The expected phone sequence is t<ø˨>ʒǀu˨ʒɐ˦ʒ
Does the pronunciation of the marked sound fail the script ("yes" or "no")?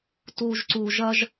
yes